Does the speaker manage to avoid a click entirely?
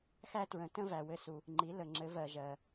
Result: no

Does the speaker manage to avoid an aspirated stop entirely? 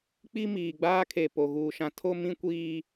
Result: no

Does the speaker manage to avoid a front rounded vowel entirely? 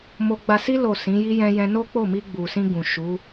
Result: yes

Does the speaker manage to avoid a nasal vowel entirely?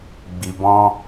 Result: no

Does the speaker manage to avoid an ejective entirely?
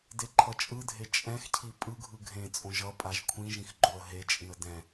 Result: no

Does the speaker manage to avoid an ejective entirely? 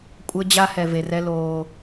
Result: no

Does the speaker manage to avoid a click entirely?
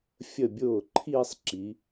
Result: no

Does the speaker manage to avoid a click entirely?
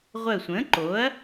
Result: no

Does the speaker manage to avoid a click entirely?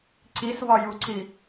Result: no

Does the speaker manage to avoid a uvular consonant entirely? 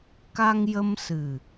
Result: yes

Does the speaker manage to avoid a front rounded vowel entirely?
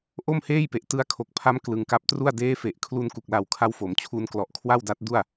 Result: yes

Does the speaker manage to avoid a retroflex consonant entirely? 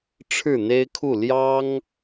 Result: no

